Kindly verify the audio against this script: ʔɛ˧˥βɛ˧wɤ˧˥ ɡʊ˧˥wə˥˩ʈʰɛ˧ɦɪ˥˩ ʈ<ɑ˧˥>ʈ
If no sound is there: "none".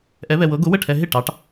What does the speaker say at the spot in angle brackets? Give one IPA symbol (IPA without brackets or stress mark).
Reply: ɑ˧˥